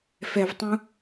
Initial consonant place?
labial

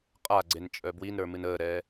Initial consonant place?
uvular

